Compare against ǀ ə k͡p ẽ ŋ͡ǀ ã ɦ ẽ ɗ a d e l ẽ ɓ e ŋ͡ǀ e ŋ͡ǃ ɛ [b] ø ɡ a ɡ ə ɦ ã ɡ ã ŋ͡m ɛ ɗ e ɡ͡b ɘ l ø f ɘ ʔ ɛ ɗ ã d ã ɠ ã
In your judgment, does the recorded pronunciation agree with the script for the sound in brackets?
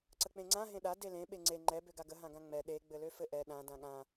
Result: yes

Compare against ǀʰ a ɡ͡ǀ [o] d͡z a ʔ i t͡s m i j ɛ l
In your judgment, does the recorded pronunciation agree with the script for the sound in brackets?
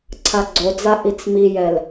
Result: yes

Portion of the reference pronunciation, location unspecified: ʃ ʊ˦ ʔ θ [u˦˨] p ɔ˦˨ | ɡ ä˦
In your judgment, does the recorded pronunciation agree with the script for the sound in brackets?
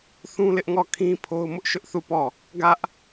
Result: yes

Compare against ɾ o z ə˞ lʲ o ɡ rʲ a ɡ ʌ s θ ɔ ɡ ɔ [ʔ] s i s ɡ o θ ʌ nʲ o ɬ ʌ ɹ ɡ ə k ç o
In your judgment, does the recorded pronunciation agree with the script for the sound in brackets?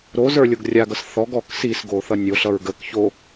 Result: no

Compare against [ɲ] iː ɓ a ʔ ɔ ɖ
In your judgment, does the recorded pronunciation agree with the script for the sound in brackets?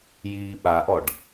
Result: no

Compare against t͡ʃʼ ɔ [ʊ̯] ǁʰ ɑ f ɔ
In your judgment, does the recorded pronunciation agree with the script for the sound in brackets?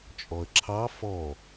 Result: no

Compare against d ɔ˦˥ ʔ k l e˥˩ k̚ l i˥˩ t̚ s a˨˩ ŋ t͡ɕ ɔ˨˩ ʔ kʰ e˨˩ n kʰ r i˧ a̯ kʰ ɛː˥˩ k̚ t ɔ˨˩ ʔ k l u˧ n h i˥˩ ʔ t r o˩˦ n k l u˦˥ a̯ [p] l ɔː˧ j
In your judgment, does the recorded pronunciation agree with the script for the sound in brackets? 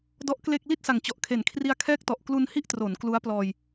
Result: yes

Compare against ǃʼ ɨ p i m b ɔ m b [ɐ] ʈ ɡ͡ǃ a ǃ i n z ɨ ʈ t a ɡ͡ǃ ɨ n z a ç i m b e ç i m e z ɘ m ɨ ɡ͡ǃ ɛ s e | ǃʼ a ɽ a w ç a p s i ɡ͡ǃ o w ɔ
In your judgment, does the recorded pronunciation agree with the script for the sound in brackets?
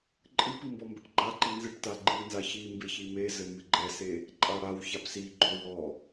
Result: yes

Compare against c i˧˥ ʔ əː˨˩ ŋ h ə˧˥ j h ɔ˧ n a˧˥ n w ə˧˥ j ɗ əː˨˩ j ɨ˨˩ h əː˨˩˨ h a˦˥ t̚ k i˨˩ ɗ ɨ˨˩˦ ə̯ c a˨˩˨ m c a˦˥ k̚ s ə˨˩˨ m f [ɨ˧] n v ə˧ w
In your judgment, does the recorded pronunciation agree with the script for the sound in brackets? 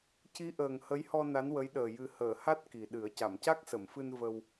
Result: yes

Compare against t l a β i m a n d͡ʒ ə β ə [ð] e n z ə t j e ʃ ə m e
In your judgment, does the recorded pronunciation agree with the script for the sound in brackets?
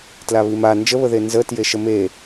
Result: yes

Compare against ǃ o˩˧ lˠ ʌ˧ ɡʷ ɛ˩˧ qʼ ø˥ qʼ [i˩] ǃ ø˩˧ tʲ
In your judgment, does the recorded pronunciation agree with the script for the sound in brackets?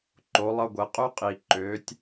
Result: yes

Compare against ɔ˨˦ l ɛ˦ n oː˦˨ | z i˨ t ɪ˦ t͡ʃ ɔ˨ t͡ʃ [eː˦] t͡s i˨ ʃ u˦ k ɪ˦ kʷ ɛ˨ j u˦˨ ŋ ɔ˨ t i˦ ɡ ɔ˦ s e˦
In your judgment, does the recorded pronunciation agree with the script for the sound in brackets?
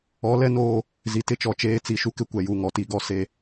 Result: yes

